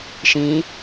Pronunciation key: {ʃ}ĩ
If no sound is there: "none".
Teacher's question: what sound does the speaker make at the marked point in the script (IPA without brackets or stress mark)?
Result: ʃ